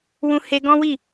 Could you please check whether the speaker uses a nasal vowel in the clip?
yes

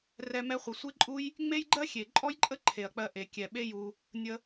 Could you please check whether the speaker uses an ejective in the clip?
yes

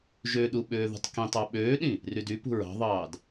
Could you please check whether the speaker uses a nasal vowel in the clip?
yes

